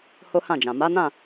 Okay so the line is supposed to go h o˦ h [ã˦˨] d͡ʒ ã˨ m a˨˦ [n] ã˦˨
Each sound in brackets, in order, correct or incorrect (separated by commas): correct, correct